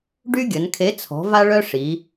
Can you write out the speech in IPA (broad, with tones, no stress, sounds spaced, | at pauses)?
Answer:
ɖ y˦ ɡʲ ə˩˧ n kʰ e˨˥ t͡sʰ ɔ̤˨˥ v a˦ ɭ œ˦ ʂ i˩˧